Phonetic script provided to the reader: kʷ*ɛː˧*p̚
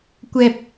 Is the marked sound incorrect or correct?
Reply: correct